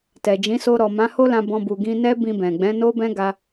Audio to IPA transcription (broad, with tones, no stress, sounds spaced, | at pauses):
t ɛ˨ d͡ʒ ĩ˨˦ s o˧ ɾ ɔ˨ m ã˨˦ h o˦ l ã˧ b ɔ̃˧ b u˨ ɡ ĩ˧ n ɛ˦ b ĩ˧ b ɛ̃˨ ɡ͡b ɛ̃˨˦ n o˦ b ɛ̃˦ ɡ a˧